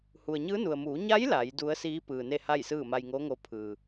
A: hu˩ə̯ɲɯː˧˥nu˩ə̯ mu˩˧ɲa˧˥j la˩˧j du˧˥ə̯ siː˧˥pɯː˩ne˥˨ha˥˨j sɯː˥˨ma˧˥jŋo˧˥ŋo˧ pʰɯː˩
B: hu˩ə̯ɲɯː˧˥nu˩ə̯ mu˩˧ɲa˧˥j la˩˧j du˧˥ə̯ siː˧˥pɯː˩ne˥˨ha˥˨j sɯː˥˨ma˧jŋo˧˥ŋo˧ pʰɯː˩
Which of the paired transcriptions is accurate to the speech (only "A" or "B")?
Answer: B